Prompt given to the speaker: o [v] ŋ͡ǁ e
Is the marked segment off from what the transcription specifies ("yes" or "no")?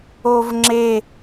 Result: no